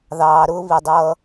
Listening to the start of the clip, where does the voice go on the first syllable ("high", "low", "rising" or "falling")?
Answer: low